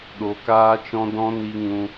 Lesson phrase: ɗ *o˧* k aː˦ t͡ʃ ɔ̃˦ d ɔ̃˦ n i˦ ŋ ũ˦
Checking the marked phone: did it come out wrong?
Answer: no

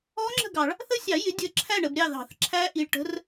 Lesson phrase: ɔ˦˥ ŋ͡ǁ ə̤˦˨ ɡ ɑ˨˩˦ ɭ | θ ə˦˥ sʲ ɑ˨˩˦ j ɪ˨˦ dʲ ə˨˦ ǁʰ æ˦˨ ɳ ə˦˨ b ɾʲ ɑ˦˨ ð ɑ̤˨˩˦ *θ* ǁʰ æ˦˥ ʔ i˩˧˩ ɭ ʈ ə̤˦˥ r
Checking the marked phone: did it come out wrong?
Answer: no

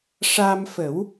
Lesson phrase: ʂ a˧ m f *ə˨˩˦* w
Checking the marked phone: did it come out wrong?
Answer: no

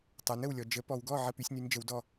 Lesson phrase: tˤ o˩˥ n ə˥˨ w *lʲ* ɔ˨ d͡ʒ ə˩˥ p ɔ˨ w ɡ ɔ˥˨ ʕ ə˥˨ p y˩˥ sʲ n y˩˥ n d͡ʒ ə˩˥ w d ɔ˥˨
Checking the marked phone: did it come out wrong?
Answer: no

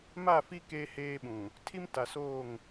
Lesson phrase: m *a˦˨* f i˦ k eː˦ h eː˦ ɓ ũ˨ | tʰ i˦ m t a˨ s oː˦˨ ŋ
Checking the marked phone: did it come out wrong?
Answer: no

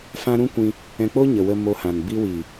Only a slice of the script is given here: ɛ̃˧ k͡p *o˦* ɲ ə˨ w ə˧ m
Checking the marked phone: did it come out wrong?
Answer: no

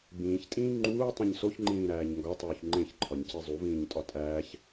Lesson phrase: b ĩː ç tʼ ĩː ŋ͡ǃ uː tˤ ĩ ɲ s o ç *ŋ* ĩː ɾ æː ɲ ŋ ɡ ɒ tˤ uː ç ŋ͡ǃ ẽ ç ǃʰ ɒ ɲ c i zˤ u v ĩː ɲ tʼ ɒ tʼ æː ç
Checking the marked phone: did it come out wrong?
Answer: yes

